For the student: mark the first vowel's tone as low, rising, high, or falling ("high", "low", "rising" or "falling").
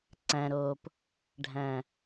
low